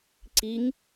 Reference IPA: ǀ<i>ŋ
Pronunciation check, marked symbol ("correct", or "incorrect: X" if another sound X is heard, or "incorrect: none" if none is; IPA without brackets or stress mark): correct